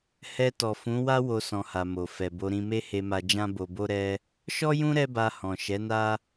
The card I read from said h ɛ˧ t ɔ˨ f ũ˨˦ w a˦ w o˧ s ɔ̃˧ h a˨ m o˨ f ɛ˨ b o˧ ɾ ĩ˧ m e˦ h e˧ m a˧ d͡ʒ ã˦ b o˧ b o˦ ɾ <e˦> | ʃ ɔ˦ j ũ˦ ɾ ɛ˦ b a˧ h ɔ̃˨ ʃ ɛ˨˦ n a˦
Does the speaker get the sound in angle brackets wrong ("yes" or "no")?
yes